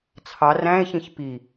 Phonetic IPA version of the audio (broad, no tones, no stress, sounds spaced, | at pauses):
t͡sʰ ɑ r æ̃ e̯ ç ĩ ç p i